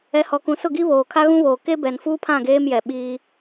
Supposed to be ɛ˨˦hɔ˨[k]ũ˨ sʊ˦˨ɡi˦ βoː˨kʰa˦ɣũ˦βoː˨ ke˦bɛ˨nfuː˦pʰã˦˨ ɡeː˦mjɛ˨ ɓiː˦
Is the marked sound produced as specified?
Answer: yes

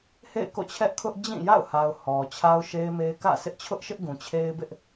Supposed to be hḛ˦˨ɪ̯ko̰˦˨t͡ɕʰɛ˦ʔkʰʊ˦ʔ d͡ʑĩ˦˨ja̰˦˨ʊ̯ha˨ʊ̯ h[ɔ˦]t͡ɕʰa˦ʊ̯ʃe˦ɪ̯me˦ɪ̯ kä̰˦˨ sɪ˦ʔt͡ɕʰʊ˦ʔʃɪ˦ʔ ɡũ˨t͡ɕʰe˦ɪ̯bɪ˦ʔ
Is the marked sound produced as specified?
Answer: no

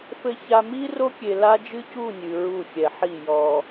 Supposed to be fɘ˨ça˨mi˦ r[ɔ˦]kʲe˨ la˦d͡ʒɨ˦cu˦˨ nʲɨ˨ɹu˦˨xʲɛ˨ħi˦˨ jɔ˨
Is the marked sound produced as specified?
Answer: no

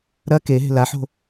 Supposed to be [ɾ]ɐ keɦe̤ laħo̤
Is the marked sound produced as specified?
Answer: yes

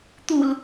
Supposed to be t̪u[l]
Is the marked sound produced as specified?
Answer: yes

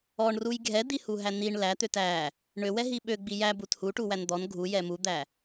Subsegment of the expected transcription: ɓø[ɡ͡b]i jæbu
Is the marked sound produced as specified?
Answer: yes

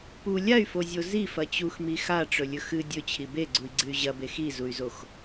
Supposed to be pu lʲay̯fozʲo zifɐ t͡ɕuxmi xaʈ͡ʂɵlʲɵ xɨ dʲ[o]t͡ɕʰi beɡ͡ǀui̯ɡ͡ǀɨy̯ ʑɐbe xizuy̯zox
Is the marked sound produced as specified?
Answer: no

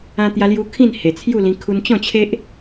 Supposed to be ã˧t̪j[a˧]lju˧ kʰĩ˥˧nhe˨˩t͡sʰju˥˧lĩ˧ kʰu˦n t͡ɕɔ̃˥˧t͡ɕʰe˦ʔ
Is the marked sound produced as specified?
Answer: yes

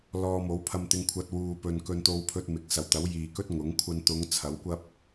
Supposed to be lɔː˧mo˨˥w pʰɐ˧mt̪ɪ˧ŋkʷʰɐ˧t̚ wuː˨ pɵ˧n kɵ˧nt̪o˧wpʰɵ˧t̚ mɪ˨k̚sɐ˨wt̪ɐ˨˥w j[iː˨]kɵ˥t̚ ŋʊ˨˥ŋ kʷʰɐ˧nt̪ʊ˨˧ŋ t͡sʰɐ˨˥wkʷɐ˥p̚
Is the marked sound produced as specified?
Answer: yes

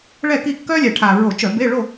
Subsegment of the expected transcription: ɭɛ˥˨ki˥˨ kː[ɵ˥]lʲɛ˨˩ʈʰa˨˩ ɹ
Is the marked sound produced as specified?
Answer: no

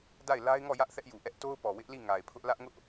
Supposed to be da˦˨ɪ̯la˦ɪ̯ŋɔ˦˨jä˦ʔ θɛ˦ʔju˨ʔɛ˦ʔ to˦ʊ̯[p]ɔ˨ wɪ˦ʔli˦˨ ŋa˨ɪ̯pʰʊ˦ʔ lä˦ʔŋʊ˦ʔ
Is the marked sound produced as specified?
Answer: yes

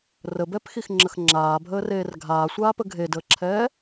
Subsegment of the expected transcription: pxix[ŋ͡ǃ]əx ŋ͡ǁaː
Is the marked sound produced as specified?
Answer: no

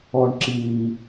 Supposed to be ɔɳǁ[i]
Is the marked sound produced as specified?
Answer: yes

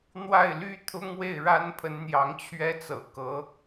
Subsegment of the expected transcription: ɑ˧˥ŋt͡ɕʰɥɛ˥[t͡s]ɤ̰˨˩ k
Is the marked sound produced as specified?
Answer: yes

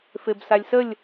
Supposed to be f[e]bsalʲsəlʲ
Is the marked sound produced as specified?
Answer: yes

